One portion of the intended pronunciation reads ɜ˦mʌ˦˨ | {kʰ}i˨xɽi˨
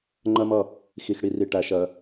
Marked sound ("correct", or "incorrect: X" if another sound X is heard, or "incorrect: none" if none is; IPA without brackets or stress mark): incorrect: x